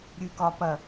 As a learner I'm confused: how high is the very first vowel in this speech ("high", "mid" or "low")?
high